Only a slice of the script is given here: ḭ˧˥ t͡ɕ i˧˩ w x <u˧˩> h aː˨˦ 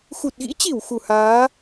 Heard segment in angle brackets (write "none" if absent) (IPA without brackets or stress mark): u˧˩